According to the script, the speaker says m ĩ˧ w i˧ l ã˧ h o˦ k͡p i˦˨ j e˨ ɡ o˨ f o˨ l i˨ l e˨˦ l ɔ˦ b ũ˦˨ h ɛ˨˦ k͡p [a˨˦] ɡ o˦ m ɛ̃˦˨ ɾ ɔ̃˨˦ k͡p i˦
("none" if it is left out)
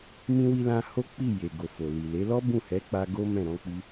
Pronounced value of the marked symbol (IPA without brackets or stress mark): a˧